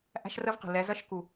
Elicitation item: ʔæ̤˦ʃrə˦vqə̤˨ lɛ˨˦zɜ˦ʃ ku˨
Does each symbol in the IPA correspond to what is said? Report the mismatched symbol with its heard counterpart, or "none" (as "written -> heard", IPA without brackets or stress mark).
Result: none